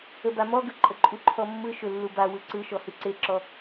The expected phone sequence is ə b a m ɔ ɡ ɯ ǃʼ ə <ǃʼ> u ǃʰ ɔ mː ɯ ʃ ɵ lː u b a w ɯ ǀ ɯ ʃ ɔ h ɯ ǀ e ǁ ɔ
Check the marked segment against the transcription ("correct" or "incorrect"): correct